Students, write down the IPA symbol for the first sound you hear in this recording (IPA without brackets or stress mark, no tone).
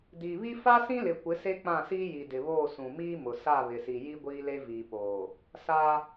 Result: d